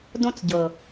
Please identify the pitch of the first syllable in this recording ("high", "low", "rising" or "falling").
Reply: high